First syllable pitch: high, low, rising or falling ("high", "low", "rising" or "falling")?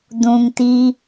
low